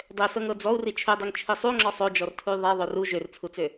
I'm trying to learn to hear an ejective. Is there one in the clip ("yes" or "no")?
no